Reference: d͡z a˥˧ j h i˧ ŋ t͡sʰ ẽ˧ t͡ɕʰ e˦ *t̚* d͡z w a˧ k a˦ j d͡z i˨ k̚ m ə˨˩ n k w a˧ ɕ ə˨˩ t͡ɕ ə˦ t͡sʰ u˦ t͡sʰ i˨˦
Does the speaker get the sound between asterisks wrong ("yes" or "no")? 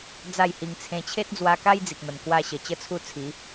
no